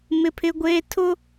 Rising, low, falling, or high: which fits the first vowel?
high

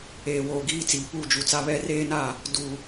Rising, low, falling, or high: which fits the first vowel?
low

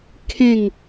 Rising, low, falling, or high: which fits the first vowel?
falling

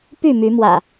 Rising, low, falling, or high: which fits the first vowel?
falling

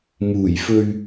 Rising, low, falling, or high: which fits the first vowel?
low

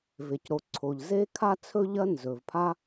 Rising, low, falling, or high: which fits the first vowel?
low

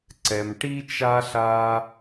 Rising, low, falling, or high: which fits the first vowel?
low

